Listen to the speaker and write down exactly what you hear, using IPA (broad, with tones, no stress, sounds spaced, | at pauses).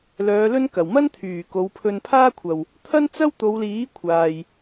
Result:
l œː˨˧ l ɵ˥ n k ɐ˨˩ w m ɐ˥ n t̪ʰ yː˨˩ k o˨˧ w pʰ ɵ˧ n pʰ aː˥ kʷʰ ɐ˨ w | t̪ʰ ɐ˥ n t͡s ɐ˥ w t̪ o˨˧ w l iː˨˥ kʷʰ aː˧ j